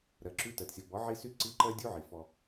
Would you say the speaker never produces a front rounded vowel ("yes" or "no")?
no